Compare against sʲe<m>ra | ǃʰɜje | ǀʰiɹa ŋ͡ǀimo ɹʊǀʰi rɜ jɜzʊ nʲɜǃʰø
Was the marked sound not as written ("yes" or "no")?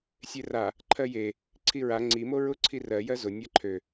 yes